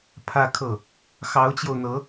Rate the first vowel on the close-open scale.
open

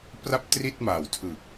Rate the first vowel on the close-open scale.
open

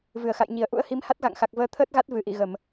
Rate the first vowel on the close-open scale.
close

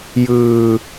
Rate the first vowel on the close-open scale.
close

